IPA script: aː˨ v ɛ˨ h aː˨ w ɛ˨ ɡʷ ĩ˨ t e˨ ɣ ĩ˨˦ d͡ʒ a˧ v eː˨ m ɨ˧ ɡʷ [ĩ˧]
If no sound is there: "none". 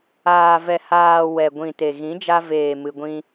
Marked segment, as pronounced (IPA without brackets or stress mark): ĩ˦